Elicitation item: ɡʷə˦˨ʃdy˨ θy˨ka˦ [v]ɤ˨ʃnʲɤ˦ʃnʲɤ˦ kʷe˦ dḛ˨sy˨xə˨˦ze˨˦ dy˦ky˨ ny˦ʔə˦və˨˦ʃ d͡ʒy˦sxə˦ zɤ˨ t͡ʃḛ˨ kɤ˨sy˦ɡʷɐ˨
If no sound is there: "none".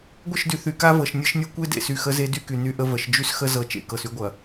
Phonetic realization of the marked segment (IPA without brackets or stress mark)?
v